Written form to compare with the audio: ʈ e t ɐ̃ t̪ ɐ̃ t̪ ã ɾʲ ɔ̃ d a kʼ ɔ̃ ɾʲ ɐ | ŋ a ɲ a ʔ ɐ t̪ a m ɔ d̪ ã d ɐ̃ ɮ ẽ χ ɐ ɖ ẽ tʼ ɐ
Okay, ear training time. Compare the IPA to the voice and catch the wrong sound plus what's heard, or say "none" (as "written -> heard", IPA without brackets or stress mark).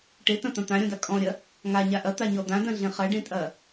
m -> ɲ